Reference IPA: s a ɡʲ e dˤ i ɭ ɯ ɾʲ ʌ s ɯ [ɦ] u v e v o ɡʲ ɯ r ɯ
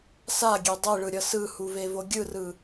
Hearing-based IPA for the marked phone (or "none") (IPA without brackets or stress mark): h